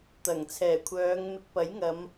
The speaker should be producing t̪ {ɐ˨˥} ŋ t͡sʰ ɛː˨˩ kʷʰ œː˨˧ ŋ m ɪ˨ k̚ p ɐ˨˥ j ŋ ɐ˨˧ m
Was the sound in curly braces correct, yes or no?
no